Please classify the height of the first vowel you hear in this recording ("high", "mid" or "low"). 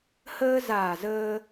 mid